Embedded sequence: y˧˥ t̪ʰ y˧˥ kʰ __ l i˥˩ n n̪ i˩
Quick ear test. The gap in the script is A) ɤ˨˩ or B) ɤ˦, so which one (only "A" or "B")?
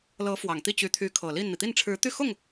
A